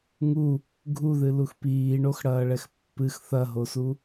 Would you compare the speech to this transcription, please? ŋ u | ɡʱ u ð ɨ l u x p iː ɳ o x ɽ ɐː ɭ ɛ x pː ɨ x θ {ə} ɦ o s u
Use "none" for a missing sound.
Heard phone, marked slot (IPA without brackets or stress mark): ɐ